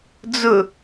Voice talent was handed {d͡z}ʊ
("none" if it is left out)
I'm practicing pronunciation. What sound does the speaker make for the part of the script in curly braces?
d͡z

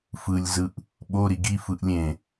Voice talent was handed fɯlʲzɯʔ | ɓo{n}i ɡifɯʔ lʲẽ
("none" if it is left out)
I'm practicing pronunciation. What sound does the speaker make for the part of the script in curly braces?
ɾ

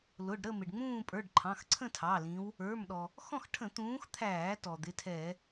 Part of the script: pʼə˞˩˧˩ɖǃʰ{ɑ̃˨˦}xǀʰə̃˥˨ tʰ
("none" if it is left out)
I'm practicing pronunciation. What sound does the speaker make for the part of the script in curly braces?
ɑ̃˩˧˩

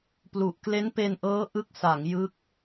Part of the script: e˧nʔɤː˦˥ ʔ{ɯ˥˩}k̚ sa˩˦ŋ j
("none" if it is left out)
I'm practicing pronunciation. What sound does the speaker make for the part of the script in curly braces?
ɯ˥˩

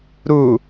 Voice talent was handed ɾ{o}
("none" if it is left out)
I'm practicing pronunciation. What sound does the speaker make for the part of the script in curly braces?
u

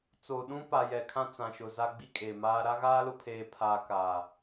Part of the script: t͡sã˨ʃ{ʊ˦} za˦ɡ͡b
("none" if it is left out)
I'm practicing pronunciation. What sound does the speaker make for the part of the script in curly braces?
ʊ˨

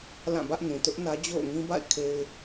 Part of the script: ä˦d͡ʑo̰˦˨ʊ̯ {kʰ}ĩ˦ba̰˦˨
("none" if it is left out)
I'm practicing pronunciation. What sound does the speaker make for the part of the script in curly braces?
ŋ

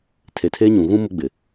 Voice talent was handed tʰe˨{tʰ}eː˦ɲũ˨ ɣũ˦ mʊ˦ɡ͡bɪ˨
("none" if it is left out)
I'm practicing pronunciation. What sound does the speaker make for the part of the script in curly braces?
tʰ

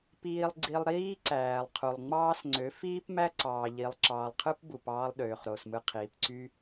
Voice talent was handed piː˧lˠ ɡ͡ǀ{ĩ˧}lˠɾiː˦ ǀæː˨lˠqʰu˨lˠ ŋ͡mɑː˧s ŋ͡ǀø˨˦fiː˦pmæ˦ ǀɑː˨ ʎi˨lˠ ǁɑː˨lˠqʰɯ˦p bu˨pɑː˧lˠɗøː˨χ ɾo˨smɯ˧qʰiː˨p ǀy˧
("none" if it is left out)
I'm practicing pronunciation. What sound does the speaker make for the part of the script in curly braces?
i˧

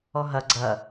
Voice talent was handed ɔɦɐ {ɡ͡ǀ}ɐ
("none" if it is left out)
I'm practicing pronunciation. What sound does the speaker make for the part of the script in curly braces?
ɡ͡ǀ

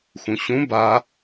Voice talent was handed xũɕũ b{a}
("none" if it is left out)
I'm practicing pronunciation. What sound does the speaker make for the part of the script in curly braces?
a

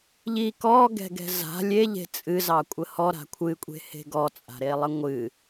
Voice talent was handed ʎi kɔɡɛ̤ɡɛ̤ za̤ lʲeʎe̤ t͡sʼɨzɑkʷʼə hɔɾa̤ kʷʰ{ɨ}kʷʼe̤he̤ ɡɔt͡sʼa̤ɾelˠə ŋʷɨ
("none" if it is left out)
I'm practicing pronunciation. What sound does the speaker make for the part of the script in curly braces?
ɨ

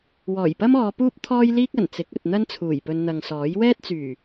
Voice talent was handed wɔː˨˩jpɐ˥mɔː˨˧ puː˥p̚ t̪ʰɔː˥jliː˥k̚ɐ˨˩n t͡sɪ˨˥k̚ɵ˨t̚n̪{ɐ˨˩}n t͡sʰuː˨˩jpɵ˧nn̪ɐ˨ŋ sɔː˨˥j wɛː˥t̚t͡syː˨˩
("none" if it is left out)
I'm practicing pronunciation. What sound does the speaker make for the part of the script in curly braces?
ɐ˥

